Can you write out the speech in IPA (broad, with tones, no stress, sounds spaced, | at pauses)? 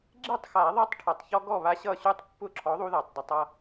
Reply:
ɡ͡ǁ e˥˩ tˤ x a˨˩˦ ðˤ ʌ˦ tˤ ʈʰ ʌ˨˩ tˤ ç ɔ˦ ɡ ɔ˥˩ β a˦ ɕ ʌ˥˩ ɕ u˥˩ tˤ pː ʊ˥˩ ǁʰ ɔ˨˥ ðˤ u˦ ð a˨˩ tˤ d ɐ˦ tˤ ʌ˦